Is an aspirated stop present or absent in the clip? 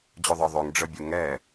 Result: absent